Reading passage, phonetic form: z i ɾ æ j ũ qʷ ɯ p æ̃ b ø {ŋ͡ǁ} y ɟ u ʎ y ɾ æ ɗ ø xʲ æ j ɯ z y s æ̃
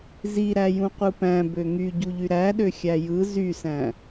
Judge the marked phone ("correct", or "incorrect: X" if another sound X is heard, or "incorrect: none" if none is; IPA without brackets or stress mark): incorrect: ŋ